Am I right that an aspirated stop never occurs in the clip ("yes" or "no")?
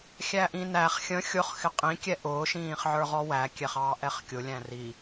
yes